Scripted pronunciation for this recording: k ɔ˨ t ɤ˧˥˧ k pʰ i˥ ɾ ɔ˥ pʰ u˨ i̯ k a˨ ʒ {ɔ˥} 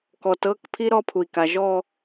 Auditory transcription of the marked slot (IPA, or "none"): ɔ˥˧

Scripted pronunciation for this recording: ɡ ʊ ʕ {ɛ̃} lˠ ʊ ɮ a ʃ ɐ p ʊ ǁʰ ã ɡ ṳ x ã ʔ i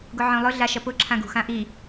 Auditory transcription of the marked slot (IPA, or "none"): œ̃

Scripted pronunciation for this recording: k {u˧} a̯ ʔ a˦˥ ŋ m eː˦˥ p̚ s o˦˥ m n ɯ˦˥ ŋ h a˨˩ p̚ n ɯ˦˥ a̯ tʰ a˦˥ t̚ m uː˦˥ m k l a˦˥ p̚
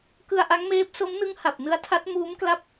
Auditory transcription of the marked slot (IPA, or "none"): ɯ˧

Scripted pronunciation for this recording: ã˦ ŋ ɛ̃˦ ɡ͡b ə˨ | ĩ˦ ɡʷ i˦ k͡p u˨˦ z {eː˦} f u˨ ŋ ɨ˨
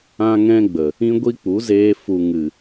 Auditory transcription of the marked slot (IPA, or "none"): eː˧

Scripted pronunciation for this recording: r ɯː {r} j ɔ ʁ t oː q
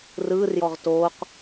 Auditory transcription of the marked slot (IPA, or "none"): r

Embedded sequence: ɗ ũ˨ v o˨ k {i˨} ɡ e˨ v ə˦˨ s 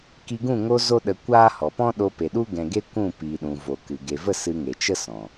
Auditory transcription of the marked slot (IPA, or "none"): ɨ˨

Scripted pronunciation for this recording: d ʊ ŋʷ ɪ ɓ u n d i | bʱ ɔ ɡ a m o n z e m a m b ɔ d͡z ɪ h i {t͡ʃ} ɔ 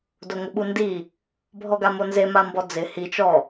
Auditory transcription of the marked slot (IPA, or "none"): t͡ʃ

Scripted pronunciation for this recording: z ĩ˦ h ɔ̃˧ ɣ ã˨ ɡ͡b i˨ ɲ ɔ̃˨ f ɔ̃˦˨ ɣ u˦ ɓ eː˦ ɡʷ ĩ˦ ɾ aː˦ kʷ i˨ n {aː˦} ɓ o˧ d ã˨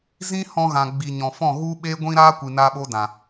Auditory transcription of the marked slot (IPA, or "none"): aː˧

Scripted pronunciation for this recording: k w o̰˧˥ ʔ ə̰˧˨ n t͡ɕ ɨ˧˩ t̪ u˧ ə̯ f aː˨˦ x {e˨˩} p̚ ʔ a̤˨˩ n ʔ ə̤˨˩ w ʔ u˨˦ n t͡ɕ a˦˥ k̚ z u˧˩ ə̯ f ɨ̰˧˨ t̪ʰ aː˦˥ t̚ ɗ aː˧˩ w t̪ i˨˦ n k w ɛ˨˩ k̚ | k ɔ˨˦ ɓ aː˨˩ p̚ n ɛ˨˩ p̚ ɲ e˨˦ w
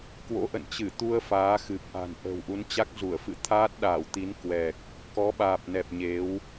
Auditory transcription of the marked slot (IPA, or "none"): ɨ˨˩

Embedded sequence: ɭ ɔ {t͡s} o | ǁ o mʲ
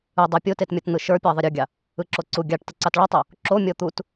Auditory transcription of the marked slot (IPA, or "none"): tˤ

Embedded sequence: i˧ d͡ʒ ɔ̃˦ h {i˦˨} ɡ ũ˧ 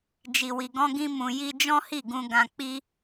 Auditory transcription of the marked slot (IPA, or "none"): i˦˨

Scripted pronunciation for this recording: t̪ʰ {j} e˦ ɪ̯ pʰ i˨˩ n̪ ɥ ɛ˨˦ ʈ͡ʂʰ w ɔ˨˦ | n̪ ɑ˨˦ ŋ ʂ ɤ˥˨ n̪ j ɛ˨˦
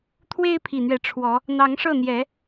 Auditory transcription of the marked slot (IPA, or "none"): w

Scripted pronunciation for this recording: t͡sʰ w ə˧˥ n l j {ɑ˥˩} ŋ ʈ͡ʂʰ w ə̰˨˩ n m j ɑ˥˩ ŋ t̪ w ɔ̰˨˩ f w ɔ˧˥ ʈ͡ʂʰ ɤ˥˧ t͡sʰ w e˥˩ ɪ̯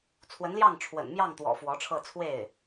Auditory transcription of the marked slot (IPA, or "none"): ɑ˥˩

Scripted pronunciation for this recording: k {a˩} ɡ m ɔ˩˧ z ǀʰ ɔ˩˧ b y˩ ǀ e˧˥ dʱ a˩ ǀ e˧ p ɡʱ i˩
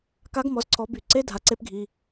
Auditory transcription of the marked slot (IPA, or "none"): a˧˥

